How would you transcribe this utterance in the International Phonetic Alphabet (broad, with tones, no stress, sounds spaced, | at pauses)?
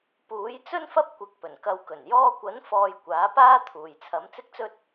p uː˨˥ j t͡s ɵ˥ n f ɐ˥ p̚ kʷ ɪ˧ k̚ p ɵ˨˩ n k ɐ˧ w k ɵ˨˩ n j ɔː˧ kʷ ɐ˨˥ n f ɔː˧ j kʷ aː˨˥ p aː˥ t̪ʰ uː˨ j t͡sʰ ɐ˨˥ m t͡s ɪ˥ k̚ t͡s ɵ˥ t̚